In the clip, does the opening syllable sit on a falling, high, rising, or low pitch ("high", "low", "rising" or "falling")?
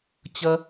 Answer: low